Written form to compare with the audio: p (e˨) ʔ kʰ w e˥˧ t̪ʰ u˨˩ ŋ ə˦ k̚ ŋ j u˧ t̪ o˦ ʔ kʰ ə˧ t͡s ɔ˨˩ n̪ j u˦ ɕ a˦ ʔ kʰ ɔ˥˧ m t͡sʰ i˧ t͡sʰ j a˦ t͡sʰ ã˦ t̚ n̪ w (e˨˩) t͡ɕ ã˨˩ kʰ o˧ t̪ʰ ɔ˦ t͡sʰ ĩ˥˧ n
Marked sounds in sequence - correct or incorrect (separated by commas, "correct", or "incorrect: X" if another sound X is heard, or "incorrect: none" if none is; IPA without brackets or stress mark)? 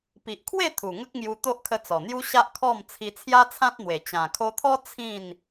incorrect: i˨, correct